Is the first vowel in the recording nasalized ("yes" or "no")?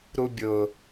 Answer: no